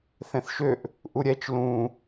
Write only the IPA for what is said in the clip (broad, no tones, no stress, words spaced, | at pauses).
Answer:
θɛ̃θʃøʔ | ʔuɾʲɛt͡ʃ lũ